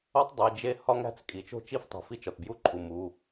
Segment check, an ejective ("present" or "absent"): present